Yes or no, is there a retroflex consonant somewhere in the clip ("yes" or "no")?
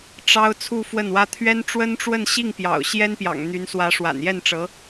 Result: yes